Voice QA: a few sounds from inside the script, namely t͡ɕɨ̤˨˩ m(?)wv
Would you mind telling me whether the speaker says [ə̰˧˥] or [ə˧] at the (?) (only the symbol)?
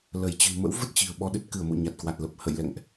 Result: ə̰˧˥